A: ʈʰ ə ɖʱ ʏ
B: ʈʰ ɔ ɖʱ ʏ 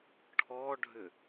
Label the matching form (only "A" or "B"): B